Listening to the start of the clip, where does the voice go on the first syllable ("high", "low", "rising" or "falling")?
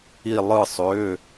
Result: falling